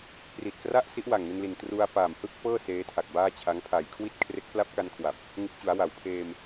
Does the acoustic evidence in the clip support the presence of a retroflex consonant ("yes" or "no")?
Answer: no